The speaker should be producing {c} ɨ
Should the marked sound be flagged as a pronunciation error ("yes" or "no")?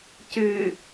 no